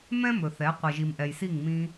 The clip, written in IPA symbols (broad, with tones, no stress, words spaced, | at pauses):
mɛ̃˦mɵ˨θɛ˨˦ qʷɛ˨ʒi˨mʔɛ˨jsi˦˨ŋ mĩ˧